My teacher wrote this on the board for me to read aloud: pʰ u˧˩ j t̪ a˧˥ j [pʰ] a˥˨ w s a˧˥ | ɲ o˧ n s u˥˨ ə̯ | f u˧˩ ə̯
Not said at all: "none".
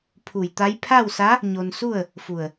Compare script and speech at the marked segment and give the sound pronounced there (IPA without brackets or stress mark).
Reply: pʰ